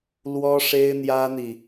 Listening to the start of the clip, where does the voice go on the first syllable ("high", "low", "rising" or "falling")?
high